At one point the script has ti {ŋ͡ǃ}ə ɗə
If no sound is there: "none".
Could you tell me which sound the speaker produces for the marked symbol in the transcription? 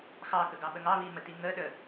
ŋ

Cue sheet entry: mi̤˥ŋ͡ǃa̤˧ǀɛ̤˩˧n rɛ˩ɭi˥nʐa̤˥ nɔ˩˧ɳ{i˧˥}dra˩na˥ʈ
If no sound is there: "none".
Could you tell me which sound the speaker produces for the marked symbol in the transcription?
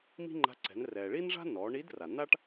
i˧˥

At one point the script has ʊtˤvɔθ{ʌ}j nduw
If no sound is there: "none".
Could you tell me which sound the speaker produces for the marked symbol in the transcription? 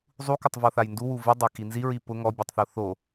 a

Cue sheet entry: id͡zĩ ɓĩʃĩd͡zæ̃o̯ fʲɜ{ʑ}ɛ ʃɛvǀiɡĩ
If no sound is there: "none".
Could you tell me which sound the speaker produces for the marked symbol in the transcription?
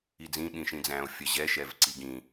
ʑ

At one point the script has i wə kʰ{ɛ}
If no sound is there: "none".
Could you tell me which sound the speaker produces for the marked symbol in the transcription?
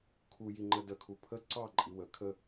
ə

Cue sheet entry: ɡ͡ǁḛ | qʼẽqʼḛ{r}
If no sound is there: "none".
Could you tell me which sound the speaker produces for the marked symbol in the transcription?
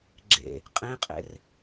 r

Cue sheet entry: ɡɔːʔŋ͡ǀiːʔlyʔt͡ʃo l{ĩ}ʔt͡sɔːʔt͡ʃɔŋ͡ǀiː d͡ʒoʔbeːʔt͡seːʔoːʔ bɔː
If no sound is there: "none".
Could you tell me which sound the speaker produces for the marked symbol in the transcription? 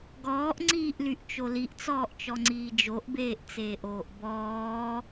i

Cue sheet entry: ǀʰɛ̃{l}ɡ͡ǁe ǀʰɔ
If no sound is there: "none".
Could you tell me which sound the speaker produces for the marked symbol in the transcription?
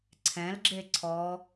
l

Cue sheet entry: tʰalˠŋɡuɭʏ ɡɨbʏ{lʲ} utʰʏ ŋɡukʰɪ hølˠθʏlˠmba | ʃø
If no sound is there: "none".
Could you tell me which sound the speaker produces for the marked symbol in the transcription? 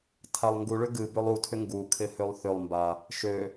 lˠ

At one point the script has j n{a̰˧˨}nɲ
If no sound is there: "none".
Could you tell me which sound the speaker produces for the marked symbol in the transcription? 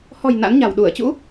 a̰˧˥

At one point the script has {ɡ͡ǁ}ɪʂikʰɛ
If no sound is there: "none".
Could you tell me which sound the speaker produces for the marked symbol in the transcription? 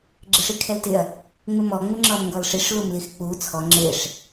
ɡ͡ǁ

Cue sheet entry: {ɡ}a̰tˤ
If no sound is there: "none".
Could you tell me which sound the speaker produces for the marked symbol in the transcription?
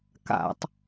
k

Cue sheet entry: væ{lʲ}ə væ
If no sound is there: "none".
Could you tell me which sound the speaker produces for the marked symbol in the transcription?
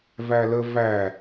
l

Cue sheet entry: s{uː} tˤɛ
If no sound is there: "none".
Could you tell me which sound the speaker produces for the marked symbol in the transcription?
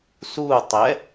uː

